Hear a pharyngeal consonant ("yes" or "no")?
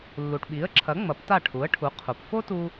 no